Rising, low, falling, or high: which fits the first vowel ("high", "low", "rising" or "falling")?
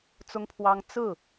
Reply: high